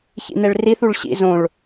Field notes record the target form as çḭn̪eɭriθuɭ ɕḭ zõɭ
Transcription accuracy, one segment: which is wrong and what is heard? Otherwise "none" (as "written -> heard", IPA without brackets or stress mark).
none